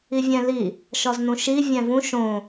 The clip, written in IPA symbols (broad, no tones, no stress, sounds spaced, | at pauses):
i vʲ æ̃ l i | ʃ ɒ z n ũ ʃ i vʲ æ̃ v ũ ʃ õ